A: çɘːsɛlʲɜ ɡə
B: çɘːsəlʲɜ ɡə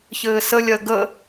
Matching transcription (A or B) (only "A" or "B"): B